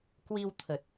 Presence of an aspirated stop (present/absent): present